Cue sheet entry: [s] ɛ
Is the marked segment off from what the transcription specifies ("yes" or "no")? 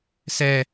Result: no